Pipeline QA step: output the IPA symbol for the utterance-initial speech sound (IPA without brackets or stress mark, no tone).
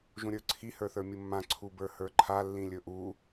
ʒ